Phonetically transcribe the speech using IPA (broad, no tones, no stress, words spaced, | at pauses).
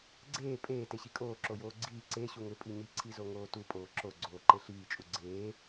ɡ͡ǀeː pʼeː teɕikʼoː ǁojoːɡ͡ǀiː ǀe ɕuŋʏ pʼiɲi ǀʰizoŋoːtu pʼoːǁo ɡ͡ǀoːǃeɬiː t͡ʃʼuɡ͡ǀeː